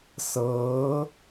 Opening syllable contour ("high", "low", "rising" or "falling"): rising